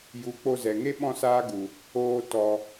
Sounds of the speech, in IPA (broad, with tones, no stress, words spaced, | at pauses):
ju˨˦k͡po˧ zɛ˨ŋe˦ ɓɔ̃˦saː˦ ɡu˨ | oː˧ tɔ˧